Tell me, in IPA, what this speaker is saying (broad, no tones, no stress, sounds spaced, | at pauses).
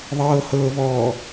ðˤ ɤː h ɤː v ɔː